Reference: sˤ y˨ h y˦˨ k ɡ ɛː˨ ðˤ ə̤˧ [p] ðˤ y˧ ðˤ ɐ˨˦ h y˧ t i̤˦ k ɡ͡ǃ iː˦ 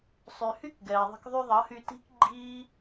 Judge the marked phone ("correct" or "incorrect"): incorrect